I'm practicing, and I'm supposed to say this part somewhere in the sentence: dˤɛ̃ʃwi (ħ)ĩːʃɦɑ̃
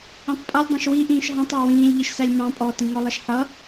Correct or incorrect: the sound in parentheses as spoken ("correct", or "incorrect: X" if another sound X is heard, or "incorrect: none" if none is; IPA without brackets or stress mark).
incorrect: ʔ